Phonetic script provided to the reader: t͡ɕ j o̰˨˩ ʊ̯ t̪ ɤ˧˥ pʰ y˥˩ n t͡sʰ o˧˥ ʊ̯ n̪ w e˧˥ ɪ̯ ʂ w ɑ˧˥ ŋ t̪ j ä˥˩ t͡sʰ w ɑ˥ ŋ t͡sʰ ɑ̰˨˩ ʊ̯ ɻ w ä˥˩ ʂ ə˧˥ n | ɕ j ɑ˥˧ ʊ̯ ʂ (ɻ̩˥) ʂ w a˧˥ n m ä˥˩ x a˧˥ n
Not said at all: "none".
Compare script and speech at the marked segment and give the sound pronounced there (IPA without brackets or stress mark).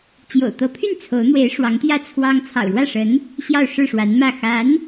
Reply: ɻ̩˥˩